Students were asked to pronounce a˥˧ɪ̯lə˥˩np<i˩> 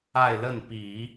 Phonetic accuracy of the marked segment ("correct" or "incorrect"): incorrect